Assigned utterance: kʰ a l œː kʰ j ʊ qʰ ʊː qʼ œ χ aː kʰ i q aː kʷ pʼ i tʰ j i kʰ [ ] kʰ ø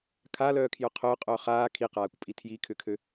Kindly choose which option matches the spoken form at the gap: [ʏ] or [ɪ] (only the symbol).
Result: ʏ